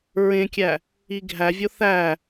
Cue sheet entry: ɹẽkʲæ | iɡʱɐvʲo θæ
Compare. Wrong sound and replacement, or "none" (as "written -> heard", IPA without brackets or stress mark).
ɐ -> æ